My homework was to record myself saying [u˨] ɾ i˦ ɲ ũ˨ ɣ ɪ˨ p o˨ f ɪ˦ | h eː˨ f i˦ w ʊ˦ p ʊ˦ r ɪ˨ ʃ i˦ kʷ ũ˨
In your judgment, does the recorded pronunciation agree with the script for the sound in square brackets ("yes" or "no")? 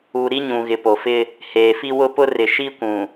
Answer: yes